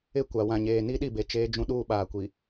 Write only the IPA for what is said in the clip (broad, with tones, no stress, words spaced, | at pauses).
ɪ˦˨ kʷa˨wã˨ɲeː˨ ni˦ɗi˦˨be˨ t͡ʃeː˦d͡ʒũ˦ ɗuː˦ɓaː˨kʷi˨